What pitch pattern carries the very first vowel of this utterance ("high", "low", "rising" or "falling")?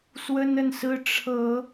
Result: high